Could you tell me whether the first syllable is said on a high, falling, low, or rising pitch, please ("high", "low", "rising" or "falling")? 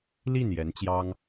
falling